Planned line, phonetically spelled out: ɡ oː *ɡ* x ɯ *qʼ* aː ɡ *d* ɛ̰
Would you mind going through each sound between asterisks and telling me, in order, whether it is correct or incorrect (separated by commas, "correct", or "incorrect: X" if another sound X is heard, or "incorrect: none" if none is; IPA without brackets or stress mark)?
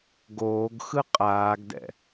correct, correct, correct